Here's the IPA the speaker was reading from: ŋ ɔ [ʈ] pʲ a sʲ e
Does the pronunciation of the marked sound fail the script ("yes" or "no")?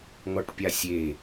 no